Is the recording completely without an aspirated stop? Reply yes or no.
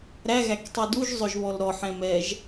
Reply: yes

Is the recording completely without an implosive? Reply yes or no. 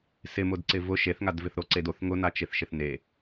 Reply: yes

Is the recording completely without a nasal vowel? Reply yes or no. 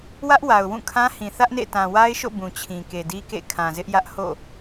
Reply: no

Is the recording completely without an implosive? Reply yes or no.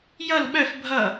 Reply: no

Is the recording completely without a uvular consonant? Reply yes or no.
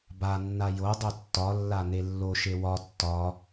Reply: yes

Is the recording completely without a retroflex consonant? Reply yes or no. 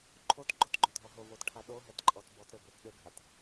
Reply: no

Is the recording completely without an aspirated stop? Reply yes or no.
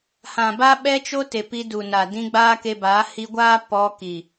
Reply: yes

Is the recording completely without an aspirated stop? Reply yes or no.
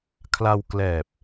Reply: no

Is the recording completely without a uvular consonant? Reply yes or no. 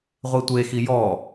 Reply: no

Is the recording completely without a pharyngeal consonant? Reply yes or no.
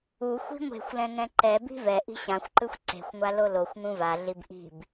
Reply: yes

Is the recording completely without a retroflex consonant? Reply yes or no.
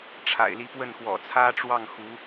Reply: no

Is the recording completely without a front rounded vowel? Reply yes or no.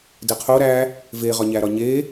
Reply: yes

